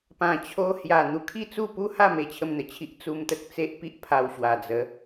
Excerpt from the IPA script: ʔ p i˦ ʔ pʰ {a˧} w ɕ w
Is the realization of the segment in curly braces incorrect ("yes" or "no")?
no